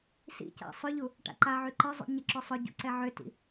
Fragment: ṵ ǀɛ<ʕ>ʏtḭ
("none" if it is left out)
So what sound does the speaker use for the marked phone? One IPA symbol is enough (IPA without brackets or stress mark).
ʕ